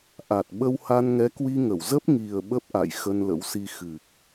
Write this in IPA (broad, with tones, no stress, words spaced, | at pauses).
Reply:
ʔa˨˩t̚ ɓə˧wha˧n ŋɛ˨˦kwi˧ŋə˧˩w zə˦˥p̚ŋi˨˩ə̯ ɓə˦˥p̚ʔa̰˧˨j xə˧nlə̰˧˥wsi˧ xɨ˨˩k̚